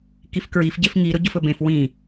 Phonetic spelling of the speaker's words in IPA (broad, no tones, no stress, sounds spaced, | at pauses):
k i f k ɹ i f ɟ e f ŋ i ɾ ʊ ɟ ʊ f ɵ b ẽ f w ĩ